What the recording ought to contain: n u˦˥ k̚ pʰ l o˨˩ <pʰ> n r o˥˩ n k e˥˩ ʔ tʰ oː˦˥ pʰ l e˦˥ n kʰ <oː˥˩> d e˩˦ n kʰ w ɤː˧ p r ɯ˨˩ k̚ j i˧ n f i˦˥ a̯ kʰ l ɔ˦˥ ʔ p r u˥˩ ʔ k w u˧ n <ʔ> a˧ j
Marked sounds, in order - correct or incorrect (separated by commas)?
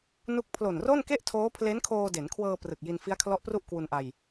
incorrect, incorrect, correct